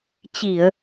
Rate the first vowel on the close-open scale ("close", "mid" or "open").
close